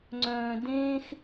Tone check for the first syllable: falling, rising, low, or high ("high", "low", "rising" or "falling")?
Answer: low